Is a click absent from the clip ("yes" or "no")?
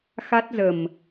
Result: yes